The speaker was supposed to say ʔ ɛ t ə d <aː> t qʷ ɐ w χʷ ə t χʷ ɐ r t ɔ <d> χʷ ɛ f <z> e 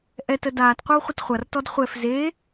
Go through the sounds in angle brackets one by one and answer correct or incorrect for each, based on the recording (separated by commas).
correct, correct, correct